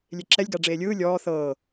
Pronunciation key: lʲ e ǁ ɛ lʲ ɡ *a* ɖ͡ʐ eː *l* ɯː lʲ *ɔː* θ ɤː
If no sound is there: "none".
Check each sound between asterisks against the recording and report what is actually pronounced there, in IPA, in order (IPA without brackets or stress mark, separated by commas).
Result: a, lʲ, ɔː